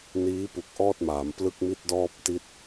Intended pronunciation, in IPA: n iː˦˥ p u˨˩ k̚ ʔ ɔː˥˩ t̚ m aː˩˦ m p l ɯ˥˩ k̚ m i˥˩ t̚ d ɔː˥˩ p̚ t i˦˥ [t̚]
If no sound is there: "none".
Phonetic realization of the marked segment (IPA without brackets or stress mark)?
t̚